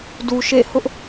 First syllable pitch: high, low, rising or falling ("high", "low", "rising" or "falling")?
low